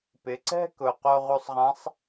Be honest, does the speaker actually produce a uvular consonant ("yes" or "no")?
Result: yes